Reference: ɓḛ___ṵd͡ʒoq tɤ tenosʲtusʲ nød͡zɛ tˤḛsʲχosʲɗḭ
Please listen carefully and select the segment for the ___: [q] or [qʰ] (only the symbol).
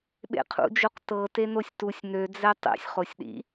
qʰ